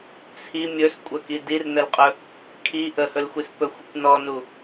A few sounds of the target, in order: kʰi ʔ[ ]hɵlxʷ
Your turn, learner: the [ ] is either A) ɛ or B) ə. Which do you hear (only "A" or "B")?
B